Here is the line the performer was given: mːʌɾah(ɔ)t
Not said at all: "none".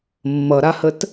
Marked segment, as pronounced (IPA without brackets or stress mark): ə